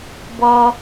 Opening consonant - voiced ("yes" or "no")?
yes